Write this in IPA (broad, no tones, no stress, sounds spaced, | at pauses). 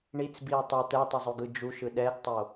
ɳ i t͡s b i e̯ tˤ ʌ t̪ ɛ tˤ ʌ zˤ o ɡ ɯ d͡ʒ u ʃ ɯ ɗ ɛ ɡ tˤ o